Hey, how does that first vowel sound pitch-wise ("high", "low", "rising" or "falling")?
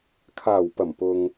low